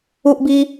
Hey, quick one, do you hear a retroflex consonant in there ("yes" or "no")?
no